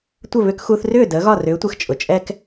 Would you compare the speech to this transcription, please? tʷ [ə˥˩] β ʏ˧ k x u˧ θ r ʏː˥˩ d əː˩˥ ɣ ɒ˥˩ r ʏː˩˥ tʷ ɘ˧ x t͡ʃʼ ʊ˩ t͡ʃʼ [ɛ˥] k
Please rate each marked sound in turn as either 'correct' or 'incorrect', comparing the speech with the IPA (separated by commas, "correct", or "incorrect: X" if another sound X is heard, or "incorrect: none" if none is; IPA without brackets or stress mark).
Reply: correct, correct